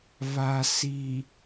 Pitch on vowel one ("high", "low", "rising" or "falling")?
low